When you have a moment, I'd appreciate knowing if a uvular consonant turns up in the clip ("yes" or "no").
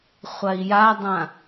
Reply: yes